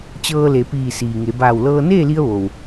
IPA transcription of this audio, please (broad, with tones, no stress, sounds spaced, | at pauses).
t͡ɕ ɤː˧ l e˩˧ p iː˧˩ s iː˩ ŋ e˩˧ b aː˧˩ w l ɤː˧ n eː˥˨ l i˧ ə̯ ʋ o˩ w